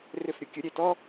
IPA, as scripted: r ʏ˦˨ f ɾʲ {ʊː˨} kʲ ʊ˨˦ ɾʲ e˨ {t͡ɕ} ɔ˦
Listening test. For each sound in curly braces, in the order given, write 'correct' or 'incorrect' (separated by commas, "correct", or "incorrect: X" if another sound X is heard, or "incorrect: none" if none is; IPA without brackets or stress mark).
incorrect: ʊ˨, incorrect: t